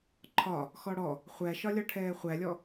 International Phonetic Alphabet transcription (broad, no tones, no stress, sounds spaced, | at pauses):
ǃʰ ɒ | x ɔ ɽ ɔ | χʷ æ ʃ ɒ lʲ ɒ ʈʰ ɛː χʷ æ lʲ ɔ